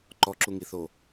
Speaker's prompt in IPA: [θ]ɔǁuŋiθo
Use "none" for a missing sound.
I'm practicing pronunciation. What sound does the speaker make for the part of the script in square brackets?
ǃ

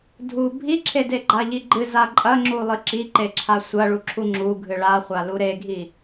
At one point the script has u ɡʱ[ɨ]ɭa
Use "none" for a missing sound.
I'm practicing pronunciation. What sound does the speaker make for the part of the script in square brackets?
ɨ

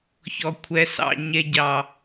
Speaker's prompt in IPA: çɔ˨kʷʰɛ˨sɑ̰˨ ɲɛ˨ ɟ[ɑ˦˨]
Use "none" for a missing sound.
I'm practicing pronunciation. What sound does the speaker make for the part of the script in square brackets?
ɑ˨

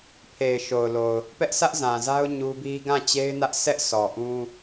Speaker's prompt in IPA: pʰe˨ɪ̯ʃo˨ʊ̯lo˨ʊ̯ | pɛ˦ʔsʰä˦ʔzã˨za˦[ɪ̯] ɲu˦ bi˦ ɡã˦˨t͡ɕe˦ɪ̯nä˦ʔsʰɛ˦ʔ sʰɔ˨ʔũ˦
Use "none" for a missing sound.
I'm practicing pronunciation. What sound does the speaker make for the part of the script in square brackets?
ʊ̯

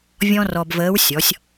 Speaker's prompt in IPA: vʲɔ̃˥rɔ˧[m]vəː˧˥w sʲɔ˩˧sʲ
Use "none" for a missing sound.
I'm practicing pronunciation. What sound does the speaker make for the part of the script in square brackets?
b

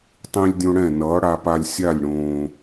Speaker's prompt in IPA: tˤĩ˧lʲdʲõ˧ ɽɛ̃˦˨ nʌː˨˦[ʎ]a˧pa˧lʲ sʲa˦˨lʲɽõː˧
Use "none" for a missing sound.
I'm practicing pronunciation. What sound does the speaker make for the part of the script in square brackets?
ɽ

